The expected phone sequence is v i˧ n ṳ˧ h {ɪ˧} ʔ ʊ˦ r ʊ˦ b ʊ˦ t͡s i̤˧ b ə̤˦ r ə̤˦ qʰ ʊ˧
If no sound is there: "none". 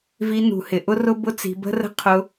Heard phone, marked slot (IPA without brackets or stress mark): ɪ˧